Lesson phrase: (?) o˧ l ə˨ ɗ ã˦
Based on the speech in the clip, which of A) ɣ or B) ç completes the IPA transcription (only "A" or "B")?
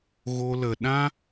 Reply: A